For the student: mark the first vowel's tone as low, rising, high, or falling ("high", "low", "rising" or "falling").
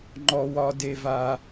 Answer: high